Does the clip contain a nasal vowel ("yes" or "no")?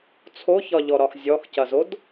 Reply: no